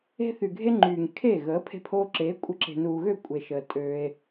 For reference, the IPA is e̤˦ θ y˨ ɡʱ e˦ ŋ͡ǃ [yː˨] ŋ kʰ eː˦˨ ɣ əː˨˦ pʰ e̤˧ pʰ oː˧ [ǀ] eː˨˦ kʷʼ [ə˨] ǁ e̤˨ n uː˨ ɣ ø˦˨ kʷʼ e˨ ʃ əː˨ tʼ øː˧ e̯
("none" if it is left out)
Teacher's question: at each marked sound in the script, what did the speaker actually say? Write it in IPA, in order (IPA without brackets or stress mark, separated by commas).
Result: yː˨, ǁ, ə˧